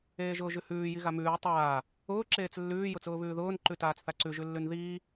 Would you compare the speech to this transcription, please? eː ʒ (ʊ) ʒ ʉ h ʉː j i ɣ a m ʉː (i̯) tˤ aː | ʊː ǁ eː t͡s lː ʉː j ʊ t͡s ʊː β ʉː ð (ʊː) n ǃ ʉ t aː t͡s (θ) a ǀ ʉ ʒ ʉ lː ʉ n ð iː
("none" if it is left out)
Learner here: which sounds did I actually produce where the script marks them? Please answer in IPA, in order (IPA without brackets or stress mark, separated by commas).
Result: ʊː, u̯, ʊː, θ